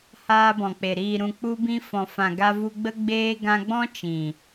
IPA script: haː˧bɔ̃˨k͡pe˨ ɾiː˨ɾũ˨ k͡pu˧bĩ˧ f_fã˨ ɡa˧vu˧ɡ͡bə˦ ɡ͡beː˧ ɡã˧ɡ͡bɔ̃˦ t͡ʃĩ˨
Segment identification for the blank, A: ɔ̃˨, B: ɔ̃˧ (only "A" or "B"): A